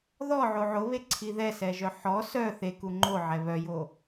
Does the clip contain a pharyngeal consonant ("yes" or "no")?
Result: yes